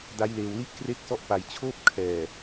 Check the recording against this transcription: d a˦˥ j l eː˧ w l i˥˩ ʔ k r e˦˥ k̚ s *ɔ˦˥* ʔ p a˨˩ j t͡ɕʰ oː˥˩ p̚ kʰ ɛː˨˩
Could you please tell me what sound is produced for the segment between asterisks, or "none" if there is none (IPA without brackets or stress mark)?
ɔ˦˥